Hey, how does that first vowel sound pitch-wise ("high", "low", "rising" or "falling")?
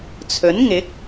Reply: rising